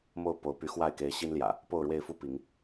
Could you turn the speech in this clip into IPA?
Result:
m o˥˨ ʊ̯ p o˨˦ ʊ̯ p y˨˦ x w a˥˨ ɪ̯ k e˨˦ ɪ̯ ɕ i˦ n l j ä̰˨˩ | p o˥˨ ʊ̯ ɻ w e˥˨ ɪ̯ f u˦ p i˨˦ ŋ

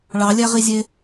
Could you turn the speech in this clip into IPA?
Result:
ɭ ɑ lʲ æ ʁ i zʲ e

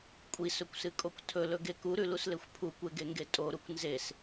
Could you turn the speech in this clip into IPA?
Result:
kʷʼ i s ɵ kʷ s ɨ kʼ o kʷ tʰ ɵ l ɵ ɡ e k u ɾ ʉ l u s l e xʷ pʰ u kʷ e ɡ e ŋ ɡ e tʼ o ɾ u kʷ n z e s

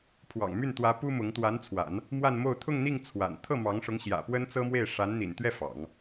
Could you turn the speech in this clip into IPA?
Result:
pʰ w ɑ̰˨˩ ŋ m y˥˩ n t̪ w ä˧˥ p u˥ m ʊ˧˥ ŋ t̪ w a˧˥ n t͡sʰ w a̰˨˩˦ n | m w a˥˧ n m o˥˧ ʊ̯ t̪ʰ ʊ˥˧ ŋ n̪ i˥˩ ŋ t͡sʰ w a̰˨˩ n t̪ʰ ɤ˥˩ m ɑ˧˥ ŋ ʂ ʊ˧˥ ŋ ɕ j ä̰˨˩ p w ə˥ n t͡s ɤ˥ m w e˥˩ ɪ̯ ʂ a˧˥ n n̪ ḭ˨˩ n t̪ ɥ ɛ˥˩ f ɑ̰˨˩˦ ŋ

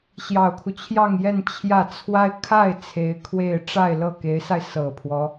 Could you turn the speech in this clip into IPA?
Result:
ɕ j ɑ˨˩ ʊ̯ kʰ u˦ t͡ɕʰ j ɑ˥˧ ŋ j ɛ˥˧ n t͡ɕʰ j ä˥˩ t͡sʰ w a˥ ɪ̯ kʰ a˥˩ ɪ̯ t͡sʰ e˧˥ ɪ̯ kʰ w e˥˧ ɪ̯ ʈ͡ʂ a˥˧ ɪ̯ l ɤ˥˩ k e˧˥ ɪ̯ s a˧ ɪ̯ s ɤ˨˩ pʰ w ɔ˦

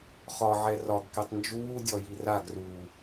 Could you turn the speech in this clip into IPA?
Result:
χ ɒ ʕ ɛ r ɒ ɡ k ɛ tˤ n d͡ʒ uː dʲ ɔ j i r a ɡ r uː

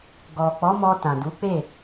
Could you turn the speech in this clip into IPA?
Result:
ɡ ɔ˨ k͡p ɔ˨˦ m ɔ˧ t ã˨ d u˨˦ k͡p e˦˨

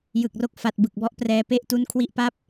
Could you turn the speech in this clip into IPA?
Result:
j ɯ˨˩ k̚ r o˦˥ k̚ f a˨˩ t̚ b ɯ˨˩ k̚ b ɔ˦˥ ʔ p r ɛː˧ p e˥˩ ʔ t u˦˥ n kʰ w i˦˥ ʔ p a˥˩ p̚

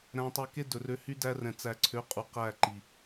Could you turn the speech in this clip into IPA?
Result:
ɾ æ̃˧ tˤ ø˧ k e˦ d ɵ˨ r ø˧ h y˦ d æ˧ r ɛ̃˨ t͡s æ˨ ǀʰ ø˨˦ qʼ u˨ q æ˦˨ ǃ i˨

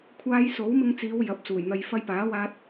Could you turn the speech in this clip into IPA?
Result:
kʷʰ aː˧ j s o˨˥ w m ɪ˧ ŋ t͡s iː˨˧ w j ɐ˨˥ p̚ s uː˨˩ j n̪ ɐ˧ j f ɐ˥ j p aː˨˥ w aː˧ t̚

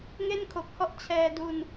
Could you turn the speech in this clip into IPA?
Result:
ŋ e˥˩ n kʰ o˨˩ k̚ h ɔ˥˩ ʔ t͡ɕʰ ɛː˧ d u˧ n

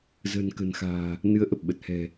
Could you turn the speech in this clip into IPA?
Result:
z ə̤ː˨˩ n k ə̤˨˩ n x a̤ː˨˩ | n ɨ˨˦ ə̯ ʔ ə˨˩ p̚ ɓ ə˨˩ t̚ h ɛ̤˨˩

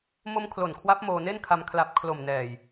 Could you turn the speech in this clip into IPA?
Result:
m o˧ m kʰ l o˨˩ n kʰ w a˦˥ p̚ m oː˧ n e˥˩ n kʰ a˧ m kʰ l a˨˩ p̚ kʰ l o˨˩ m n ɛː˨˩ j

